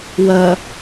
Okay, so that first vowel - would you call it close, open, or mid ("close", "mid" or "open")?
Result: open